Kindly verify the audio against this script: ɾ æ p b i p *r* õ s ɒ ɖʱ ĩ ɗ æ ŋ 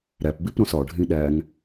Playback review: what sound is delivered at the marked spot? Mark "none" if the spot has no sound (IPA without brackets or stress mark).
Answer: ɾ